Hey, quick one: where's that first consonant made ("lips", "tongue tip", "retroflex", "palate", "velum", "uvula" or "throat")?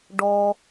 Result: retroflex